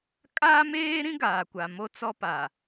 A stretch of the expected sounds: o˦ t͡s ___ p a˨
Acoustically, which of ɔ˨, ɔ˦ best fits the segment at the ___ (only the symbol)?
ɔ˦